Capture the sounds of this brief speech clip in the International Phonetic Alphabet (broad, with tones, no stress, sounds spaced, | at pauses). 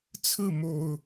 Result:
t͡sʰ ɹ̩˥˨ m o˨˩ ʊ̯